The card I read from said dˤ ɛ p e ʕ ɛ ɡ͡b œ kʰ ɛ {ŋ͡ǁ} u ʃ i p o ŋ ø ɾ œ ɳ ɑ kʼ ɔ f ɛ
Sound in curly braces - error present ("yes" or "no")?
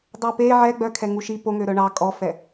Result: yes